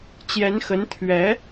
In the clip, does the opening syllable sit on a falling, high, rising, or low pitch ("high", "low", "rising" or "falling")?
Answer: rising